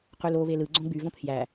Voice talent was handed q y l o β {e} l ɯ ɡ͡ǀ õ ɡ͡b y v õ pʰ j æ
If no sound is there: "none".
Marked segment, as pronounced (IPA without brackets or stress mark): e